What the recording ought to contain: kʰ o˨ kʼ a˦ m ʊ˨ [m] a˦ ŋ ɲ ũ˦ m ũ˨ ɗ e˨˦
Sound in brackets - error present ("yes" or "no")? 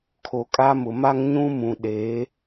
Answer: no